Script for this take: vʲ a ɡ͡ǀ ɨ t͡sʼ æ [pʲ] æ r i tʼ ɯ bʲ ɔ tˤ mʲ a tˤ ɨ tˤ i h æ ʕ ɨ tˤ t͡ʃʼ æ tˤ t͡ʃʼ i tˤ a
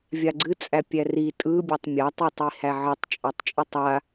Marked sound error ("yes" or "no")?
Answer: no